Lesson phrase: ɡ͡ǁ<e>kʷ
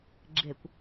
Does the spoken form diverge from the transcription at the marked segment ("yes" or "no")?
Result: no